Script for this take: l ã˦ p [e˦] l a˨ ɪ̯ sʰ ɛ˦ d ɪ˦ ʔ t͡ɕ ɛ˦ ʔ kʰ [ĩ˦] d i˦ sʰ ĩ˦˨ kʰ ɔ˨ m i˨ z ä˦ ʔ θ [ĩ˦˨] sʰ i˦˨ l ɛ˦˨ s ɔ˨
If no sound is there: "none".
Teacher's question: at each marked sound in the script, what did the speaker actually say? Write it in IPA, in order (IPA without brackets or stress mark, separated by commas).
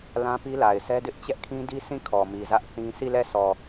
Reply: i˦, ĩ˦, ĩ˦